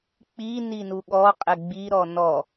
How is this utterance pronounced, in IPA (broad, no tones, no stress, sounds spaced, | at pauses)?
k͡p i n i n u ɠ ɔ qʼ ɪ ɡ͡b i ɾ ɔ n ɔ